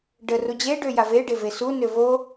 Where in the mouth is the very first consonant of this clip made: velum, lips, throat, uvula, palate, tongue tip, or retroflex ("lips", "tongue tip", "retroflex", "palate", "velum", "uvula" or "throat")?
retroflex